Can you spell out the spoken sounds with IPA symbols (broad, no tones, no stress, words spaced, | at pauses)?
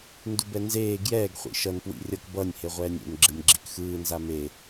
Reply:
ndubɛnzeː ɡjɛːɡ χʷḭʃʌn pwḭrʲʌk bʌnʲ heʁʷɛːnʲḛn ɡ͡ǁɯnʲɡ͡ǁikxɯː nzame